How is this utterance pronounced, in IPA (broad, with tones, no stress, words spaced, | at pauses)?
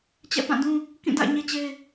t͡ɕɛ̰˦˨pã˦˨dũ˦ | kĩ˦˨da̰˦˨ɪ̯ ɲe˦t͡ɕe˦ɪ̯